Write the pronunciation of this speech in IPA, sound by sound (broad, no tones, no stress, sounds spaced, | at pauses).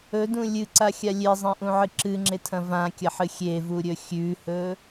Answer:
ɵ d ũ lʲ ɨ ǀ a xʲ a lʲ e zˤ ẽ ʔ ũ ʕ ɨ ǁ ɨ ŋ͡ǁ e tʰ ɐ̃ v ã kʲ ɐ ħ ɨ xʲ e v u ɾʲ ɵ xʲ ʉ h ɵ